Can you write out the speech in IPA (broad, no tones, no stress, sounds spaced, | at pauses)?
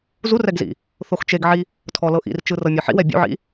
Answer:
z u r ɛ ɡ z ḭ | θ o x t͡ʃ e ɡ ʕ i | tʰ ɔ l ɤ ʔ ḭ r t͡ʃ ɯ r ɤ mʲ ɯ ħ ḭ w ɛ bʲ ṵ ʕ ḭ